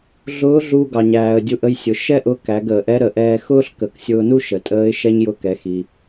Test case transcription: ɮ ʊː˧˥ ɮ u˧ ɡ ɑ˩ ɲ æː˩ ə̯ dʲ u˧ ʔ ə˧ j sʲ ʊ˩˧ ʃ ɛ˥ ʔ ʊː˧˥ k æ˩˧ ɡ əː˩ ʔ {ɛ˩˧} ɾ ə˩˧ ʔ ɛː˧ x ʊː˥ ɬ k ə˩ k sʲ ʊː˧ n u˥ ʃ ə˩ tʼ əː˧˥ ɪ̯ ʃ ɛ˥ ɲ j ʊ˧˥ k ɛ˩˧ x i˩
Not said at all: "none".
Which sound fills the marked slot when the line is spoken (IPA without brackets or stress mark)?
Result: ɛ˧˥